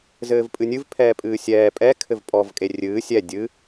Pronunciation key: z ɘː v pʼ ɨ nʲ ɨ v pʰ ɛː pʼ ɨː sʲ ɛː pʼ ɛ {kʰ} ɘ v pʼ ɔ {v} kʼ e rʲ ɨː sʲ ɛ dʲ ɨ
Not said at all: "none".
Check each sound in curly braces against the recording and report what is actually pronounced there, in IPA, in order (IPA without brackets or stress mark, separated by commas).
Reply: kʰ, v